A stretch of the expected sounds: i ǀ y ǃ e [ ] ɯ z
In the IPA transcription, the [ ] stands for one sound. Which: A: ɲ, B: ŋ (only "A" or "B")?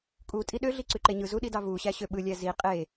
A